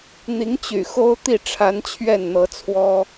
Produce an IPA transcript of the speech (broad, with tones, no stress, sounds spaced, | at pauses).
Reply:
n̪ i˧˥ ŋ t͡ɕ y̰˨˩ x o˥ ʊ̯ t̪ i˥˩ ʈ͡ʂʰ a˧˥ n t͡ɕʰ ɥ ɛ˥˩ n n̪ ɤ˧˥ t͡sʰ w ɔ˥